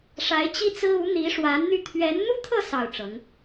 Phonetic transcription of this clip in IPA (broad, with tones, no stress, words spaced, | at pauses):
ʂa˧˥ɪ̯t͡ɕi˥t͡sɹ̩˥ u˧˥n̪i˧˥ʂwa˧˥nn̪y˥˩ t̪ʰɥɛ˧˥nn̪u˥t̪ʰɤ˥˧ sɑ˥˩ʊ̯ʈ͡ʂɤ˧˥ŋ